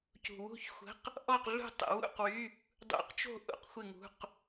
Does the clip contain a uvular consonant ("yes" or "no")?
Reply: yes